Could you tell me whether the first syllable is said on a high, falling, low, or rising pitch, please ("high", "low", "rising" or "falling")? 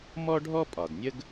high